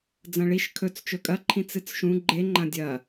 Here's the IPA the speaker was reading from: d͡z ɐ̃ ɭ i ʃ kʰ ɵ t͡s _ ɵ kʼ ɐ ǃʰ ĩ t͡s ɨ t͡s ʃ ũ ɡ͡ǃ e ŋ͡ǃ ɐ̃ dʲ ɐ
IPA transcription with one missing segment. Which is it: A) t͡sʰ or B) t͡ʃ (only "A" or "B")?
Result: B